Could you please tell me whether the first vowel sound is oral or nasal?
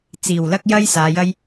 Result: oral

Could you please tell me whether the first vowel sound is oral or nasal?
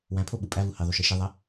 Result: nasal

